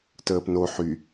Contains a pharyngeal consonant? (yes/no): yes